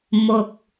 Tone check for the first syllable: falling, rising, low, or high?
low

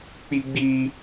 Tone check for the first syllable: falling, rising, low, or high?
high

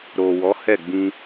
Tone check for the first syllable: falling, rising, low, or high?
low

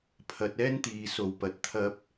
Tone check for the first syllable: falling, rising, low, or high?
low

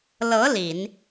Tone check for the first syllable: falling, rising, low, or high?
rising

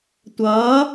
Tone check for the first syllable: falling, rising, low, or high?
rising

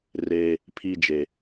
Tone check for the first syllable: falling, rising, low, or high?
high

